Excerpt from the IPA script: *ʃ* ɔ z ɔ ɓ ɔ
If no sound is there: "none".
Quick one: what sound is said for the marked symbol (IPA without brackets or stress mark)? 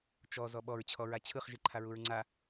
t͡ʃ